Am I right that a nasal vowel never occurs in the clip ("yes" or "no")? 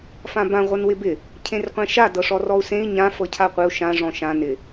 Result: no